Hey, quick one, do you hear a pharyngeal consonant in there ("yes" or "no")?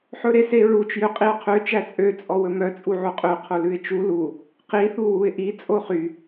yes